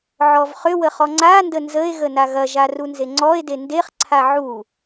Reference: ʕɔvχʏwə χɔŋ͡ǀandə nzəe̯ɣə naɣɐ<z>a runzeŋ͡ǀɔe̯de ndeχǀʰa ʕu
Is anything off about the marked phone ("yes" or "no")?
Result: yes